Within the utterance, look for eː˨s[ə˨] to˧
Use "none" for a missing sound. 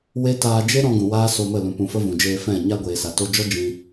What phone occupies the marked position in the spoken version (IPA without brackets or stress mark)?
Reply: a˨